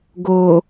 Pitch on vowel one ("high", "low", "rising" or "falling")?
low